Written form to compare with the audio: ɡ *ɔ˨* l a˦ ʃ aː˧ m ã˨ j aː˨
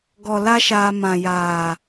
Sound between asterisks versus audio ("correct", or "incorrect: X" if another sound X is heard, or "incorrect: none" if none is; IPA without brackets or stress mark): correct